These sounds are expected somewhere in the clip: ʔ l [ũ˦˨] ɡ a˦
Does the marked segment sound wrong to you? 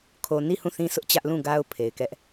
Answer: no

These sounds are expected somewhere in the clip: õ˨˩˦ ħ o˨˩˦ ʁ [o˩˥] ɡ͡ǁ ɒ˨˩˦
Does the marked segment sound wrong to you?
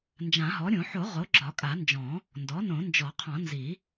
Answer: no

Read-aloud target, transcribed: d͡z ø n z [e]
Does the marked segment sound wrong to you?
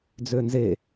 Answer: no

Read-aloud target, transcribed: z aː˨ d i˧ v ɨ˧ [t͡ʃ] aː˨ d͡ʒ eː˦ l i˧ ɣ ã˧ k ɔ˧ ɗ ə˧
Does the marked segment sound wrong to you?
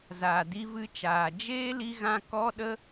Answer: no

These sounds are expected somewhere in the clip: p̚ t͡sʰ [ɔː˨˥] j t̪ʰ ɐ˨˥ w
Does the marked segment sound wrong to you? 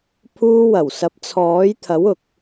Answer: no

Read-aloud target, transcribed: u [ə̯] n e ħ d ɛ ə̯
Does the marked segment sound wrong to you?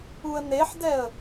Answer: no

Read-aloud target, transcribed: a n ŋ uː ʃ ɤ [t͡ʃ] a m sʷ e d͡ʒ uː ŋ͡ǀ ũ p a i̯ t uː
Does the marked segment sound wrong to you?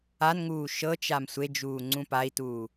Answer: no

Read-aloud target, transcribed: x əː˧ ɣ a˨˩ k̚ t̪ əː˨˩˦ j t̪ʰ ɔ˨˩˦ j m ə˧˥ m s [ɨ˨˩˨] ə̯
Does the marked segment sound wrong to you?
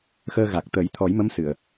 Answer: no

